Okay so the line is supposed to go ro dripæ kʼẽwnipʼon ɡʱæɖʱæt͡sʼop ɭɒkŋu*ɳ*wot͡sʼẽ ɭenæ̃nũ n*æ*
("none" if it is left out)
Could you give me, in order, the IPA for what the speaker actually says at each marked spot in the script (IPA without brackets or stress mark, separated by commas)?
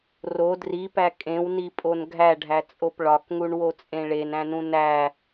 ɳ, æ